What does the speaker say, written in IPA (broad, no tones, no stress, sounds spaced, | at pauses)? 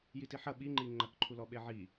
j i t i ħ ɐ ɓ i ŋ͡ǃ i ŋ͡ǃ ɐ k ǃʰ u l ɔ ɓ e ʕ i